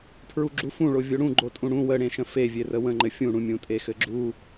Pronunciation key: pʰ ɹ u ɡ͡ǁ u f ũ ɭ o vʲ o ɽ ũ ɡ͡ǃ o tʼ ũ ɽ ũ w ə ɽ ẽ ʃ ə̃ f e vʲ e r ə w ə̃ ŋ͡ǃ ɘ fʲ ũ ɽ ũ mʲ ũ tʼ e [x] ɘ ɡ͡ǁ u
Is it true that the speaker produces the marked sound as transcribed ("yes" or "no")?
yes